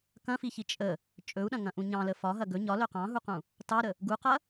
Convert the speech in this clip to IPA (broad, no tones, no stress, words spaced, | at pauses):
kɐ̃fiçi t͡ʃʼə | t͡ʃʼɵu̯ɗɐ̃ŋɐ̃ʔũ ɲɑ̃lə fɒɦɐ ɡɵ ɲɒlɵ qɑ̃ɦuqũ | tɑɾə | ɡuqɐ